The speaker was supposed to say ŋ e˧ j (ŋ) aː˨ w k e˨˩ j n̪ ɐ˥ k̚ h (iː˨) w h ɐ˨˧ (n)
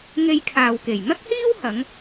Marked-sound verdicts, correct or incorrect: incorrect: kʰ, incorrect: iː˥, incorrect: ŋ

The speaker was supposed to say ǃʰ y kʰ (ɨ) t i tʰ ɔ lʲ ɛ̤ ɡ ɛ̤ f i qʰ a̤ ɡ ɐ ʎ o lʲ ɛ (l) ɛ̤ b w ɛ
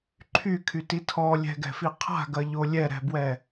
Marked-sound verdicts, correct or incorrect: incorrect: y, incorrect: ɾ

